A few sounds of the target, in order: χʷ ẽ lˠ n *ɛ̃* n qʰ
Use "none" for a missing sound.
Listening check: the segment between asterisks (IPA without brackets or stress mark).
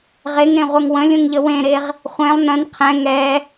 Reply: ə̃